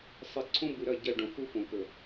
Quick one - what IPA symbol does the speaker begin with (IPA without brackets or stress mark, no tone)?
sˤ